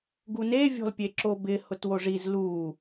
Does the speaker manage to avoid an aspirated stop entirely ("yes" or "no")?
yes